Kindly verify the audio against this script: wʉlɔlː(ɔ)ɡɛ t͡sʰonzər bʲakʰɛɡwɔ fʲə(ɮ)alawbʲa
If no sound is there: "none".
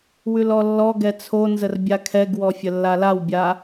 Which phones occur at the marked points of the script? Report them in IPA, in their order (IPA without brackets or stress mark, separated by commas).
ɔ, lː